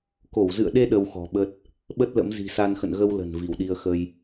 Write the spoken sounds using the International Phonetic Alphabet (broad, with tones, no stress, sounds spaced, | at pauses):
k o˧˩ w z ɨ̰˧˨ ə̯ ɗ e˧ ɗ ə˧ w x ɔ̤˨˩ ɓ ə˦˥ t̚ | ɓ ə˦˥ t̚ l ə̰˧˥ m z i̤˨˩ s a˧ n x ə̰˧˨ n ɣ ə˧ w l ə̤˨˩ n v i˧˩ w ɗ i˧ ə̯ x ə˧ j